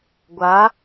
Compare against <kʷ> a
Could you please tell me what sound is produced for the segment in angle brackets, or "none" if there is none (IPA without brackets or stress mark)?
ɡʷ